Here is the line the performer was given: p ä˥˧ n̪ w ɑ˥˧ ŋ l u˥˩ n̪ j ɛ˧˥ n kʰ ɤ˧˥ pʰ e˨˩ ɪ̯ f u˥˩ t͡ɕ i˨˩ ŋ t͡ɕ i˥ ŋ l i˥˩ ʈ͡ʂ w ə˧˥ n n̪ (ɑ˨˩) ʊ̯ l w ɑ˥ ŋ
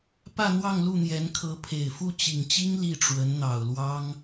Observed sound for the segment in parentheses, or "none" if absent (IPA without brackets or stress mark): ɑ˨˩